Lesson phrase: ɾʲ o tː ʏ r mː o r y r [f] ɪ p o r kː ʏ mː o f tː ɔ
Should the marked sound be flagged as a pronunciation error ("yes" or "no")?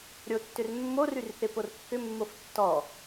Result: yes